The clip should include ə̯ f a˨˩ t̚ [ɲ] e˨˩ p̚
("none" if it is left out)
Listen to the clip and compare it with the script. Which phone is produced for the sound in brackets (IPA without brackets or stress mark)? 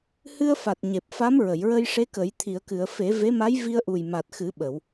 ɲ